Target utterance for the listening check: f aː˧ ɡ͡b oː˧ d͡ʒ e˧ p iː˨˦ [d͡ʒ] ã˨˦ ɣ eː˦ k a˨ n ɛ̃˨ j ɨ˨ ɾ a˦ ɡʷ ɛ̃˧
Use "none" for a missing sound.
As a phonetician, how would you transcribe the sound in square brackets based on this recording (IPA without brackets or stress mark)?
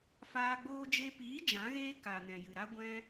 d͡ʒ